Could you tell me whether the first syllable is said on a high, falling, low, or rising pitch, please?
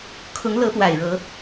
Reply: rising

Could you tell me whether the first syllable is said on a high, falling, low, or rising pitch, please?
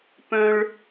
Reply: high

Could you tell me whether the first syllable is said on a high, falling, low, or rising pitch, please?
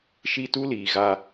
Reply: high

